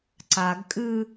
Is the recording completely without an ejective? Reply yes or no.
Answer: no